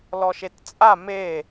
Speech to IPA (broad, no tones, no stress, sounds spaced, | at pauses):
l ɔ ʃ e t t͡sʼ a m e